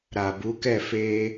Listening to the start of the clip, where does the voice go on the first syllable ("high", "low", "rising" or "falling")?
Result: low